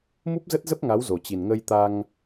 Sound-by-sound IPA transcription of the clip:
m u˦˥ p̚ z ə˦˥ t̚ z ə˦˥ p̚ ŋ a˨˦ w z o˨˩ t͡ɕ i˨˩ n ŋ ə˧ j t̪ a˧ ŋ

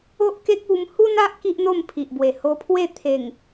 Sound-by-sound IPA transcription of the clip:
o˦ ʔ k e˦ k̚ u˧ m h u˦ n a˦ ʔ k i˦ ʔ n̪ o˥˧ m pʰ i˨ ʔ b w e˨˩ h o˧ pʰ w e˥˧ t̪ʰ e˨˩ ŋ

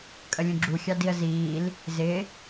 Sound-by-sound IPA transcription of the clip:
kʼ ə lʲ ũ ɡ͡ǁ u xʲ ɑ d i ə̯ z iː l | z ɪ

